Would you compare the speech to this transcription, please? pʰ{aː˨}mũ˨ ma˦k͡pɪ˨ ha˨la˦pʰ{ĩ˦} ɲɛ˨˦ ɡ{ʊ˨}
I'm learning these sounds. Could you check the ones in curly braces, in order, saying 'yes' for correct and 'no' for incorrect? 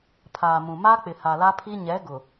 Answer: yes, no, yes

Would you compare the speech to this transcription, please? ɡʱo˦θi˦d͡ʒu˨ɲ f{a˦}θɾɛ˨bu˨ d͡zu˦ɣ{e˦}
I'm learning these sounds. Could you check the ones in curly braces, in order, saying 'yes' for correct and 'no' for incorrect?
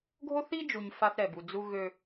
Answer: yes, no

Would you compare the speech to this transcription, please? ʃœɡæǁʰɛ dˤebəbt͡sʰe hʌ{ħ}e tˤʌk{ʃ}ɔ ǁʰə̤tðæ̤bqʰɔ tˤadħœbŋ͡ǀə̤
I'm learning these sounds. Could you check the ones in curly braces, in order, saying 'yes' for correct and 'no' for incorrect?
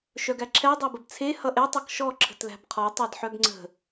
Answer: no, yes

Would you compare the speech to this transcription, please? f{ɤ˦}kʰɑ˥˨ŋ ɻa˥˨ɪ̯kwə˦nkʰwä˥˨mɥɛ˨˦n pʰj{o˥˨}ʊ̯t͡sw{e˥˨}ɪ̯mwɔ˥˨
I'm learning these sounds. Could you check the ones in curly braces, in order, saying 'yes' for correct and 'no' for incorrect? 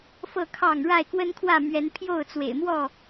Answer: no, yes, no

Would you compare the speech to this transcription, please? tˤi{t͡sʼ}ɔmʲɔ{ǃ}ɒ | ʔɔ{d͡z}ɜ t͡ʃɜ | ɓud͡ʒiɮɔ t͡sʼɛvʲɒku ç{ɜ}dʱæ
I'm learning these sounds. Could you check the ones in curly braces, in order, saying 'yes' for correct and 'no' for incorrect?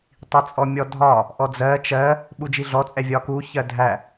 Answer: yes, no, yes, yes

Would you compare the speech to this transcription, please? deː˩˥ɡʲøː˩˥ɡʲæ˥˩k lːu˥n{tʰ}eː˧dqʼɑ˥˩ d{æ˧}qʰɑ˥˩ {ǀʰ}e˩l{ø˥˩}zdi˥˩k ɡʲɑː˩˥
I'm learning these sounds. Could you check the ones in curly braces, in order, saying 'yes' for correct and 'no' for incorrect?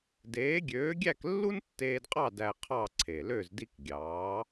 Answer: no, yes, yes, yes

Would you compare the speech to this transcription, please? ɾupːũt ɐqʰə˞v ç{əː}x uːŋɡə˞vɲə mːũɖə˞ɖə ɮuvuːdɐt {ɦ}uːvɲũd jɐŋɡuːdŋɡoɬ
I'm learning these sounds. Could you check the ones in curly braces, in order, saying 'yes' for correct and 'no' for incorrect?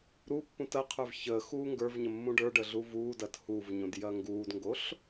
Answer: yes, no

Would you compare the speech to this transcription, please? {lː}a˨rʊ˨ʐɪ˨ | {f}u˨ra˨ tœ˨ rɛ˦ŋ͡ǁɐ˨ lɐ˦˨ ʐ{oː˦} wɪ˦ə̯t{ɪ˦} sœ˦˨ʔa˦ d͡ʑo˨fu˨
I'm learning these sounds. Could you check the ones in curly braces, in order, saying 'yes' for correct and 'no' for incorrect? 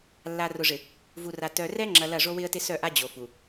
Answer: yes, no, no, yes

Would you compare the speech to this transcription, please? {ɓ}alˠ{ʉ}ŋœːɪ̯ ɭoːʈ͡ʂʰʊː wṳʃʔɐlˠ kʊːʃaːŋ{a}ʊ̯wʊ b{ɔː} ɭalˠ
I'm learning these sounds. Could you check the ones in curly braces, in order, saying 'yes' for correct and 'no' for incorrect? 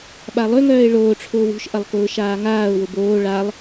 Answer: yes, no, no, no

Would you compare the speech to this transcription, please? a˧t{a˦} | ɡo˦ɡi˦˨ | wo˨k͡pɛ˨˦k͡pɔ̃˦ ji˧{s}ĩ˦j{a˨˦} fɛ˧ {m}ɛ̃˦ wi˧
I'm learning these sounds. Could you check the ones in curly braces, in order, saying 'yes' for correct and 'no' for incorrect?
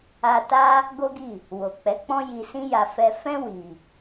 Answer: yes, yes, no, no

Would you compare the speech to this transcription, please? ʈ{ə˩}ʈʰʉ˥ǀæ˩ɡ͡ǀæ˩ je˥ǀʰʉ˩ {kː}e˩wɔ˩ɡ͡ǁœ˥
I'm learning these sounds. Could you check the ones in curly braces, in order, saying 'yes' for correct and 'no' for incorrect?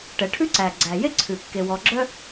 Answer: no, yes

